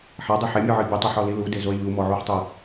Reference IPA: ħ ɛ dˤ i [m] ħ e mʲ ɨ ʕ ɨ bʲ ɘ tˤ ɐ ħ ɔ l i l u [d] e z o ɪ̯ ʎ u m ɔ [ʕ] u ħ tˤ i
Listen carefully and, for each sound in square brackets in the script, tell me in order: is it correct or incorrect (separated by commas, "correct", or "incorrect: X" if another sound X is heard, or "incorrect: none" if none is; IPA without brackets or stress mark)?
incorrect: none, correct, correct